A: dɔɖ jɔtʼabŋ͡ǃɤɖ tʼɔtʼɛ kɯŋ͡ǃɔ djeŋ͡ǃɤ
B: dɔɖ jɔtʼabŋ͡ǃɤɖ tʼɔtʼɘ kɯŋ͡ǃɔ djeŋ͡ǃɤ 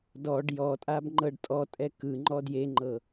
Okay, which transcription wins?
A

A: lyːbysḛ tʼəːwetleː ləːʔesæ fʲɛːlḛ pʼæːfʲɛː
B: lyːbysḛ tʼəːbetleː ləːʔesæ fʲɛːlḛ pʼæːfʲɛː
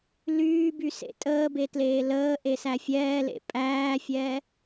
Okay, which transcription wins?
B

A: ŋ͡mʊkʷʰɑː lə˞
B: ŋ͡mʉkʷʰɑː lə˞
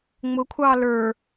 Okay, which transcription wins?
A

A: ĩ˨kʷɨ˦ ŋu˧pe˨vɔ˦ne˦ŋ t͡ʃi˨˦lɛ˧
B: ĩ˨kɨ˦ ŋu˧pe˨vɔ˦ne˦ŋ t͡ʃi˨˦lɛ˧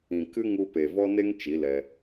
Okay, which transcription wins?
B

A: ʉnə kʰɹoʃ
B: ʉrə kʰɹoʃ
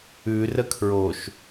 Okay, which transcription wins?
B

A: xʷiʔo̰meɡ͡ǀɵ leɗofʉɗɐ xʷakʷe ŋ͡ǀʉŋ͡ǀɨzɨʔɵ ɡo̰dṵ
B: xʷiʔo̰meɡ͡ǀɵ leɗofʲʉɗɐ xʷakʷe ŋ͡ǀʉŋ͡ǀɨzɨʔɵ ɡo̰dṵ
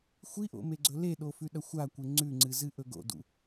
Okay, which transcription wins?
A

